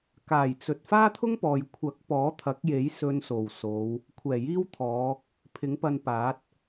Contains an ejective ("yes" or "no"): no